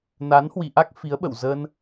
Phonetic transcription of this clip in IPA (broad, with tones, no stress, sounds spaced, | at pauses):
n a˨˦ n h w ḭ˧˨ ʔ a˦˥ k̚ f i˨˦ ə̯ ɓ ə̰˧˨ w z ə˧ n